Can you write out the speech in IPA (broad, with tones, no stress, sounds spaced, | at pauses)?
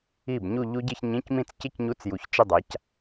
i˥˩ b ɲ u˥˧ ʎ u˦˥ ɟ ɪ˥˧ ç ɲ ĩ˧˥˧ c m ĩ˥˩ t͡s c ɪ˥˧ c ɲ u˧˥˧ t͡s j u˨ ç t͡ʃ ɪ˥˧ dˤ a˨˥ c